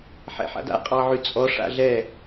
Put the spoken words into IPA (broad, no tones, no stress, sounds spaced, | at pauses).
ħ ɛ̰ ħ a̰ d a̰ qʼ ɑ ʕ y t͡sʼ ɔ ʂ a̰ ɮ ɛ